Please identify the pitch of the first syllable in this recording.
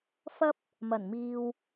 high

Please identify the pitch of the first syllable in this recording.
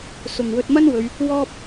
low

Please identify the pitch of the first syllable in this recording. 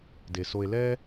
low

